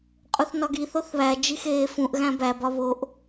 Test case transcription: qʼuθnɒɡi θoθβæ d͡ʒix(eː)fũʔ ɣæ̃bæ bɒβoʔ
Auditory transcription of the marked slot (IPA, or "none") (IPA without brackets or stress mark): eː